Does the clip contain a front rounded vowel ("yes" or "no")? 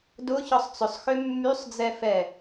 yes